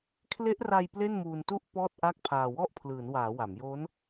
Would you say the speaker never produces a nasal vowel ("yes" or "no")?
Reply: yes